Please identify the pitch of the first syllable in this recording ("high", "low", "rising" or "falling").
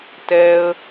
low